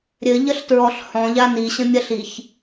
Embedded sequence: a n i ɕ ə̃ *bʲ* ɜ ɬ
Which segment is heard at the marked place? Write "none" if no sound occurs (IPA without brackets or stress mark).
mʲ